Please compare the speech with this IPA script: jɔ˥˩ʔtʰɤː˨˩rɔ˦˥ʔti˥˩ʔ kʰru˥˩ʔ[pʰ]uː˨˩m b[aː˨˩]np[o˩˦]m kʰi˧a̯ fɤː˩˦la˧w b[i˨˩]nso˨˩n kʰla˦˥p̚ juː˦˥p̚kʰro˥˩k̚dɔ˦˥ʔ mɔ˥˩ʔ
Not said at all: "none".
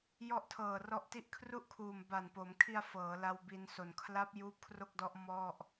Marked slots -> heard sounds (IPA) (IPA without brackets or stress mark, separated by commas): kʰ, a˨˩, o˩˦, i˧